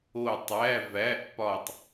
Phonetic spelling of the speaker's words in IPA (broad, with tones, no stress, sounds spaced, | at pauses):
o˦˨ tˤ æ˧˥˧ v æ˧˥˧ ʔ p ɒ˦˨ tˤ